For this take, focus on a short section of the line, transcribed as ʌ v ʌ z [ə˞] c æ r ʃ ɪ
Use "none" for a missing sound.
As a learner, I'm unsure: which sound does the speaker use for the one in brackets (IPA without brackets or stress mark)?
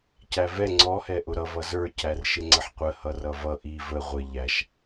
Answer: ə˞